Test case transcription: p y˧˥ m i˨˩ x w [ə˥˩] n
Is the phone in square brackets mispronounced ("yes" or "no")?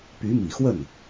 no